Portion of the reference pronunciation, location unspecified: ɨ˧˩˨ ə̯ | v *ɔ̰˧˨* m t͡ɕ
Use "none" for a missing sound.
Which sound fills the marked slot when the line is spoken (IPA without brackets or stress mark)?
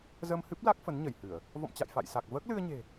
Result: ɔ̰˧˨